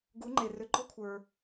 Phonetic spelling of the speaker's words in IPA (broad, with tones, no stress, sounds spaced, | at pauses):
ɡ u˩˥ ŋ͡ǃ e˩ r ʏ˩˥ ɡ͡ǃ ɔ˥ kʷʰ ə˞˩